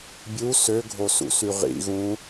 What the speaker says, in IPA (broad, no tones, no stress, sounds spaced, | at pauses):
bʲ u s ø ɡʱ o s ṵ s y ʁ ḭ ɣ ũ